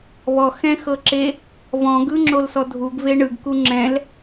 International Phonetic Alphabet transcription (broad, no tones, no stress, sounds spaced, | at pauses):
β ɔ x ɛ̃ x ɤ ǁ e | v ɔ̃ ɡ ɯ ŋ͡ǁ o l s ɔ dʱ u ɡ v e ɳ ɯ ɡ k u ŋ͡ǁ ɛ̃ l